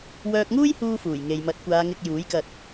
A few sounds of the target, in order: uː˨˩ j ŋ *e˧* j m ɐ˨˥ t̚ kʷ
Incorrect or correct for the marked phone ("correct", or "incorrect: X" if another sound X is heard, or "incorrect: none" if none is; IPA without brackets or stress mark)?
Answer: incorrect: e˨